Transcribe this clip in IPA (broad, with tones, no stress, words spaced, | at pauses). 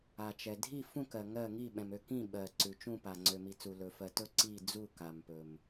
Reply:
a˩t͡ʃɛ˩ dʱi˦˨fũ˦˨kɜ˩ ŋɜ˦˨ ŋi˦˨ɓɛ̃˩mø˦˨ kĩ˦˨ ɓɜ˩ ǀʉ˩t͡ʃũ˦˨pa˩ ŋ͡ǀø˩mi˩t͡su˩ lɵ˩fɜ˩tɵ˦˨ ǀi˦˨d͡zu˦˨ ka˩mpɵ˩m